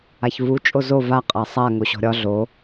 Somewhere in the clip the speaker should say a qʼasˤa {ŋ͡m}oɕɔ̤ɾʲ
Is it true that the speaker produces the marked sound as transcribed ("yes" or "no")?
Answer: no